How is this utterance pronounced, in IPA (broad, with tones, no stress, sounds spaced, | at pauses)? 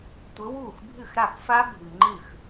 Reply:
tʷ ɘ˨˦ w uː˥˩ x bʱ ɨ˥˩ x ɾ a˥˩ x f a˦˥ bʱ ɨ˨ ŋ͡ǃ ɨ˥˩ x